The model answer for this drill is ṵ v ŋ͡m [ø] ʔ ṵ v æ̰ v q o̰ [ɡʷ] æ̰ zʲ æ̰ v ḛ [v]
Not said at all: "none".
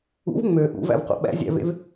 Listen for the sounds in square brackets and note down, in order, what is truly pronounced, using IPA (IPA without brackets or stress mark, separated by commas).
ø, ɓ, v